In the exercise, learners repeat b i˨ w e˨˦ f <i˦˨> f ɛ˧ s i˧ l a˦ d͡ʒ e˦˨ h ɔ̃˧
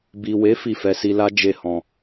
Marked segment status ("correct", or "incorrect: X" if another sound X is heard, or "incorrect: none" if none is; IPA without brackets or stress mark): correct